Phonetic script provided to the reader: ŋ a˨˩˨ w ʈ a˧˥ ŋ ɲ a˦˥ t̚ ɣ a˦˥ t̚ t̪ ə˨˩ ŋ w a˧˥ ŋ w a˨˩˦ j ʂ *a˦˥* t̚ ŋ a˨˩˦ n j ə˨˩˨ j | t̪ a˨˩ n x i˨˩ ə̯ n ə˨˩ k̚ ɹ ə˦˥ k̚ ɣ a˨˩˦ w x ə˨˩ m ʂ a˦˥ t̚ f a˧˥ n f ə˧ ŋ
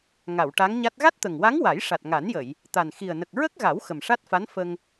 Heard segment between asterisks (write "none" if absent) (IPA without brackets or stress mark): a˨˩